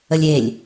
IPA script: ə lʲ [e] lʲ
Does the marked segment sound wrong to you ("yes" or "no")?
no